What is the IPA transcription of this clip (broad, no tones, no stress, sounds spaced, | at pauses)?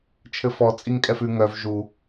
t͡ʃʰ ɘ f ɔ t͡sʼ i ŋ kʼ ɛ f ʉ ŋ œ v ʒ u